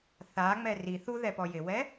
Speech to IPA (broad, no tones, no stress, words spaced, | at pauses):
θaŋ͡mɛ ri θuðɛpɔ jɪwɛ